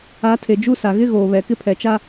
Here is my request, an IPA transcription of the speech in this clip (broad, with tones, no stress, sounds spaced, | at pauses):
a˨˦ tʰ e˨ d͡ʒ u˦ s a˨ ɣ ɪ˦ ɣ oː˨ β ɛ˨ k ɪ˦ pʰ ɛ˨ t͡ʃ a˦